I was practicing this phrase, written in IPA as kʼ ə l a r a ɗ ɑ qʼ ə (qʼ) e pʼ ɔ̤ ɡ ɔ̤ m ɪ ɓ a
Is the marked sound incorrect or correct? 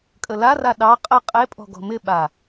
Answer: correct